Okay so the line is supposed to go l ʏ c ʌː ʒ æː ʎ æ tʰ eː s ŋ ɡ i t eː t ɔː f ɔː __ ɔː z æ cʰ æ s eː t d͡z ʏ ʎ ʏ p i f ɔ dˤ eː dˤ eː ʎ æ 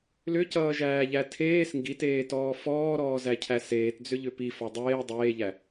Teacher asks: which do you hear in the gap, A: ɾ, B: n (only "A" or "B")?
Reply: A